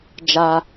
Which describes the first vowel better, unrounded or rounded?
unrounded